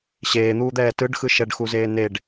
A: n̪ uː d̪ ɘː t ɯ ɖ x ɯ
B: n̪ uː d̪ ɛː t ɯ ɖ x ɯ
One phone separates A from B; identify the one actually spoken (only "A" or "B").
B